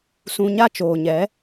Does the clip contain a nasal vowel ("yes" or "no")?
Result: yes